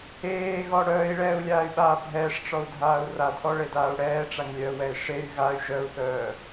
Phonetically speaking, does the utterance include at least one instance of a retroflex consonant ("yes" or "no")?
yes